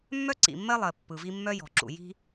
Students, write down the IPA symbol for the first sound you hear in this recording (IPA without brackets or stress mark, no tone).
mː